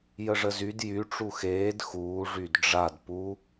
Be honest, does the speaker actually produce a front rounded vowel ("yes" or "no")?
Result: yes